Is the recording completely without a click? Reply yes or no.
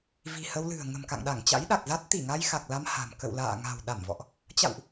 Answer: yes